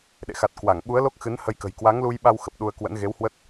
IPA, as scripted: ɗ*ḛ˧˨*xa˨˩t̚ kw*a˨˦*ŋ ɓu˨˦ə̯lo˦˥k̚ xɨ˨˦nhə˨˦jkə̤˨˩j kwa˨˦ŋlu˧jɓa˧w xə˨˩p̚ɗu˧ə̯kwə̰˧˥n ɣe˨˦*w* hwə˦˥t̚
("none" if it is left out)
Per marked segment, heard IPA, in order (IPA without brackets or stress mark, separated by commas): ḛ˧˨, a˧˩, w